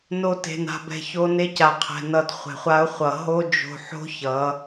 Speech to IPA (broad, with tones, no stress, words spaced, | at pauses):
no˦te̤˧na̤˧bɛ̤˧ ço˧ne˧ ca˧qʰɛ̤˧nʌ˧d χʷe̤˨χʷa˧ʊ̯χʷʌ˨ ɦo˦d͡ʒo̤˧ħo̤˦ çʌ˨˦